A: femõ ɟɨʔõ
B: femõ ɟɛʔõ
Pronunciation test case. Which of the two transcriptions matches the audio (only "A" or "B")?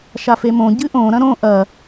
A